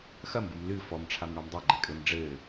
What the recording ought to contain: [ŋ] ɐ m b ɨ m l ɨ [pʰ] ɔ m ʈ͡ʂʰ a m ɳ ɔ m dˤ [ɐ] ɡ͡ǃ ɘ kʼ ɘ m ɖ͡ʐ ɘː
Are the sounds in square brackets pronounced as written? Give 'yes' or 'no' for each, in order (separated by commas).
no, no, no